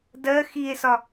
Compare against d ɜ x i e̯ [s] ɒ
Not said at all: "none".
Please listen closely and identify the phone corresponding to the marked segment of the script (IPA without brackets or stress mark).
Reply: s